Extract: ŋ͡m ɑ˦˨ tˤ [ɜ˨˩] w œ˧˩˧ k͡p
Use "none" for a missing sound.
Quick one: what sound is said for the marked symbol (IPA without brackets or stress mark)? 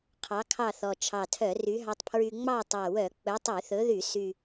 æ˨˩